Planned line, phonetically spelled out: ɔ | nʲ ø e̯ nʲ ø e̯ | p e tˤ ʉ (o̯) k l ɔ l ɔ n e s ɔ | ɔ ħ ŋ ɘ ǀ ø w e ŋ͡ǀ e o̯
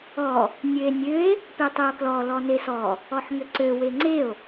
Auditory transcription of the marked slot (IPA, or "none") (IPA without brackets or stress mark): o̯